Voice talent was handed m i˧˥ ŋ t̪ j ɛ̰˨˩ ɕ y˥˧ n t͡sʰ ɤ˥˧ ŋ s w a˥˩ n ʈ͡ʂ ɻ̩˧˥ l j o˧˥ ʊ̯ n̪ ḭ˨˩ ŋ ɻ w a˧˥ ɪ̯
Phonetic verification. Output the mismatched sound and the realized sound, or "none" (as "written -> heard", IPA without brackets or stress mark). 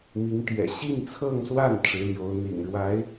y˥˧ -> i˥˧